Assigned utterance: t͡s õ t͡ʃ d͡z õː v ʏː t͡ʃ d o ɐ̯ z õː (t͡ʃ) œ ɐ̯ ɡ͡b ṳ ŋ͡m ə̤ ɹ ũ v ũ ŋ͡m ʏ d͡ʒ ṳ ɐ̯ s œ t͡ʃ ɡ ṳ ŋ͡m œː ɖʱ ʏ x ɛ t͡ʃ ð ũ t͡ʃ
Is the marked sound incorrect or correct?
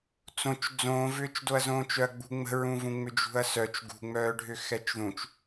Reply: correct